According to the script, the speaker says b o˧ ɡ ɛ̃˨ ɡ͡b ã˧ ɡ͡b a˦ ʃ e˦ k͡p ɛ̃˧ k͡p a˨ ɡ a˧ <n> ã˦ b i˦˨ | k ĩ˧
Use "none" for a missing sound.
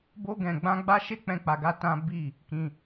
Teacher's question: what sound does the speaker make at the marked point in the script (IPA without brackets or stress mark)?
t